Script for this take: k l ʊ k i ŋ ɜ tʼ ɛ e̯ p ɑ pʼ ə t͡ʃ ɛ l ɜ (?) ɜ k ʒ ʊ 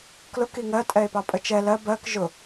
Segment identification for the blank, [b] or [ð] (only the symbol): b